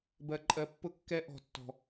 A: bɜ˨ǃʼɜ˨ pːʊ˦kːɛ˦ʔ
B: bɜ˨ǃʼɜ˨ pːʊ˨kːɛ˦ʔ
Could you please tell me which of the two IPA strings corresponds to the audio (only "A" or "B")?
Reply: A